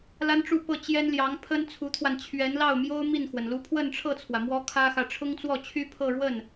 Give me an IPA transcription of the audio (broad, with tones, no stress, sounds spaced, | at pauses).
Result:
l a˥ n ʈ͡ʂ u˥˧ p ɤ˥˩ t͡ɕ j ɛ˥ n l j ɑ˧˥ ŋ pʰ ə˥ n t͡sʰ u˧˥ t̪ʰ w a˧ n t͡ɕʰ ɥ ɛ˧˥ n l ɑ˥˩ ʊ̯ m j o˥ ʊ̯ m i˥˩ n x w ə˩ n l u˧˥ pʰ w ə˥˧ n ʈ͡ʂʰ ɤ˥˩ t͡sʰ w ä˩ m w ɔ˥ kʰ ä˥ x ä˨ ʈ͡ʂʰ ʊ˥ ŋ t͡s w ɔ˥˩ t͡ɕʰ y˥ pʰ ɤ˥˧ ɻ w ə˥˩ n